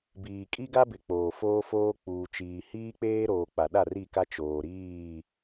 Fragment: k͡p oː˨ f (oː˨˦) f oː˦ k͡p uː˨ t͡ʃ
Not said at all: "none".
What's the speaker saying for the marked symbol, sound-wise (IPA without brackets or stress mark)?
oː˦